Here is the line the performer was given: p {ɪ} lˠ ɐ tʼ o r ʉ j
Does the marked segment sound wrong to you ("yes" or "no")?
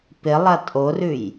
no